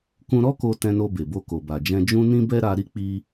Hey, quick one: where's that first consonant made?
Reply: velum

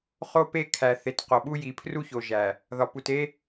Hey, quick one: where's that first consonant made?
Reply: uvula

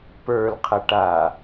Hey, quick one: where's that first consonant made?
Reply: lips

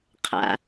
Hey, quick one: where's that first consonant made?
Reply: uvula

